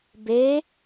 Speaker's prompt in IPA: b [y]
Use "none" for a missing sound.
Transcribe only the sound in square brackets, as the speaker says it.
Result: e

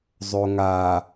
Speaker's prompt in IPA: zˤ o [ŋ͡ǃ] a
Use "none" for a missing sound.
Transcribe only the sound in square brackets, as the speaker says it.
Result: ŋ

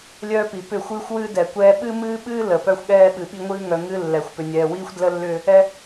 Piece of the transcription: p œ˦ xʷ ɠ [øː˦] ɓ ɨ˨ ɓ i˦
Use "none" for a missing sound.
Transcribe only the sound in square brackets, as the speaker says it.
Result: ɛː˦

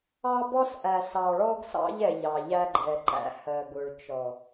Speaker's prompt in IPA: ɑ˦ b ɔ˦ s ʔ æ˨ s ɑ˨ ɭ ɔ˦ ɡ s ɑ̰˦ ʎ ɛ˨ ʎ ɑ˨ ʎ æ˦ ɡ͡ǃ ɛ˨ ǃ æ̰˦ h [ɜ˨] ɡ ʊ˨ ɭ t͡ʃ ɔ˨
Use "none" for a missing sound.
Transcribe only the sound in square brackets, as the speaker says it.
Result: ɜ˨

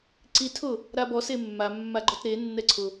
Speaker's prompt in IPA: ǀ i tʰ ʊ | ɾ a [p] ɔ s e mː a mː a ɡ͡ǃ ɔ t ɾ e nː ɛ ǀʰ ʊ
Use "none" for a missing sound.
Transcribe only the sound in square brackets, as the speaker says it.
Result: b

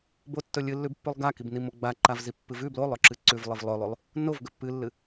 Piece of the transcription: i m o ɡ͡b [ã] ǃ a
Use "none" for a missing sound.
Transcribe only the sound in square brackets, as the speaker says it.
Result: a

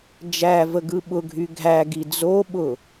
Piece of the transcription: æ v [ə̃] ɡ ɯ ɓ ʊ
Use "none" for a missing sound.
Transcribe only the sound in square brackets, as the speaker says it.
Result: ə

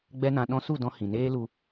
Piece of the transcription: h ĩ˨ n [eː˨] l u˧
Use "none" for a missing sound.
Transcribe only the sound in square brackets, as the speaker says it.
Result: eː˦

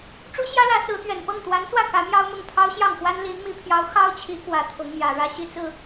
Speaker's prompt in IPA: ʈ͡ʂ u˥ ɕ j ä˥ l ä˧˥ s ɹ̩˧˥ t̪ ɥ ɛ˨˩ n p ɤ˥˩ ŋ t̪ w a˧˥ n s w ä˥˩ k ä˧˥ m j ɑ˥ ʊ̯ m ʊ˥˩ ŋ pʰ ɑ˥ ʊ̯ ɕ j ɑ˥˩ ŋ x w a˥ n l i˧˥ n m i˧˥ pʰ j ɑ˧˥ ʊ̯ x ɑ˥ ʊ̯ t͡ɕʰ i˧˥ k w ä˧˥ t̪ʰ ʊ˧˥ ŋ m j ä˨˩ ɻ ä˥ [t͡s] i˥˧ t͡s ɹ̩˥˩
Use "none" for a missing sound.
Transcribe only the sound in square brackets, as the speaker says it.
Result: ɕ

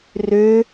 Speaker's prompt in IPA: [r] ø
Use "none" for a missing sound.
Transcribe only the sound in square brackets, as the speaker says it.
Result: r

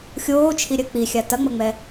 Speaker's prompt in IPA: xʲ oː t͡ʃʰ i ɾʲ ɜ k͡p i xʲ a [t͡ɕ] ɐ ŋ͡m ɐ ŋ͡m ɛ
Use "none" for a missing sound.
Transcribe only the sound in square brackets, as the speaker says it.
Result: t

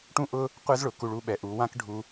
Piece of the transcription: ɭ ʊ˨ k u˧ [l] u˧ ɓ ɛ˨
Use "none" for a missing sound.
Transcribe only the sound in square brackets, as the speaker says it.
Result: ɭ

